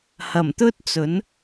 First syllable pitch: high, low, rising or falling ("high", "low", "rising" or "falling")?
low